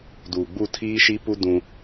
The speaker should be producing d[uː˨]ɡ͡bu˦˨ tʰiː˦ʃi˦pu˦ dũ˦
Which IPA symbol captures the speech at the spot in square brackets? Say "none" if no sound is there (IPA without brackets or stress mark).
uː˨